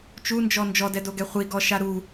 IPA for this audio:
t͡ʃ u n d͡ʒ ɔ n d͡ʒ ɔ d ɛ d o ɡ ɛ χʷ i ɡ ɔ ʃ a ɾ u

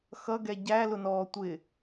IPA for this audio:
x ʌ ɡ ɛ ɟ æ l ʊ n ɔː tʷ ɪ

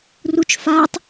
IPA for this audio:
r u t͡ʃ f a tˤ

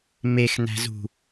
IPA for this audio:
m e x n æ̤ z ṳ

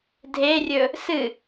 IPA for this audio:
dʱ e rʲ ɵ | s ɨ

